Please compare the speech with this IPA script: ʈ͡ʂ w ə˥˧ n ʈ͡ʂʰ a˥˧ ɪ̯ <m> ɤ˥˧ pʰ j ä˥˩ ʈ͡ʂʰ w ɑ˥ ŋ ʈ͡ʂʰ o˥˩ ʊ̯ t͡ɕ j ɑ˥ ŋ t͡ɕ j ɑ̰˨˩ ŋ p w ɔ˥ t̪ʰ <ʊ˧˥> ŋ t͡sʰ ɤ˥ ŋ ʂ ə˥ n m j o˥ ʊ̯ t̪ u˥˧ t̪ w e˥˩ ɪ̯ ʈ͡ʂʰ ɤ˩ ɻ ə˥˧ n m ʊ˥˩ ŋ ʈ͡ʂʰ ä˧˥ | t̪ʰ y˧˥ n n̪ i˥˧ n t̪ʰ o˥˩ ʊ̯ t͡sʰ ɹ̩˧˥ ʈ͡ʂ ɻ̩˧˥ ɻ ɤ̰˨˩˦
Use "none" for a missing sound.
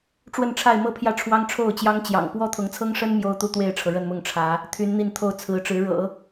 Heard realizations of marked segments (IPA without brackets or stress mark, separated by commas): m, ʊ˧˥